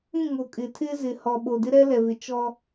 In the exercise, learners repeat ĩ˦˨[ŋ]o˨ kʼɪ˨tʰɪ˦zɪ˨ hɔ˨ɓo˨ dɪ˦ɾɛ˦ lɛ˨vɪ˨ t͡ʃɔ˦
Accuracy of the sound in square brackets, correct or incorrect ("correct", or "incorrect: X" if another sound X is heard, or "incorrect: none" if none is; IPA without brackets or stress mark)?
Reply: correct